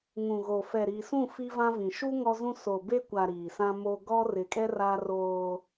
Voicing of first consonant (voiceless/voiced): voiced